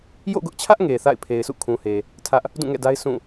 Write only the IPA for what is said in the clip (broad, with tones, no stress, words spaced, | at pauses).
jo̰˦˨ɡʊ˦ʔt͡ɕʰä˦ʔ ŋe˨ θa̰˦˨ɪ̯pʰe˨ɪ̯ sṵ˦˨kʰũ˨he˨ | tʰä˦ʔ | dũ˦˨ŋɛ̰˦˨da˦ɪ̯ sũ˦˨